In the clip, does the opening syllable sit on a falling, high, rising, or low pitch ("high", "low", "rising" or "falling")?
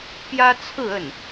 high